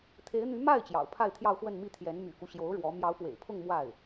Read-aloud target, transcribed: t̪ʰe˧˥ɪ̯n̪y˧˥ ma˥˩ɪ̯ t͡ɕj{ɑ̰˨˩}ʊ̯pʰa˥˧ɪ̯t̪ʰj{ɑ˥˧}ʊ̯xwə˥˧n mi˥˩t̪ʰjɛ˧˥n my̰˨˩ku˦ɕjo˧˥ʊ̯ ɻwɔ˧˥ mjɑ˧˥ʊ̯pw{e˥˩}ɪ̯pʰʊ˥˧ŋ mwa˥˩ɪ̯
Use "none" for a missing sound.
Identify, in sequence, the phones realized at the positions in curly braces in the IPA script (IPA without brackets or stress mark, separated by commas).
ɑ̰˨˩, ɑ˥˧, ḛ˨˩